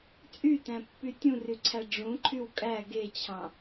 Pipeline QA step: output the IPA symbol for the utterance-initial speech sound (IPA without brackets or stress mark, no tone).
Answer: t͡sʼ